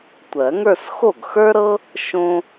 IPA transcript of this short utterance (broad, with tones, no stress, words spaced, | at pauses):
tʷɜ˨˩˦ŋə˞˥˧s xo˥˩ɡxə˞˥ɾɤ˥ | ʃõ˥